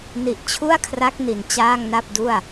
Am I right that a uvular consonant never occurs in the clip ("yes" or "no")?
yes